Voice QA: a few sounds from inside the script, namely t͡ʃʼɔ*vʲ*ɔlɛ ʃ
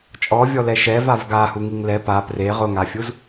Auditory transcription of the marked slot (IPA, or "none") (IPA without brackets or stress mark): vʲ